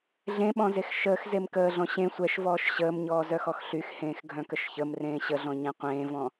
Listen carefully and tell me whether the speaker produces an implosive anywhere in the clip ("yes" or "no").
yes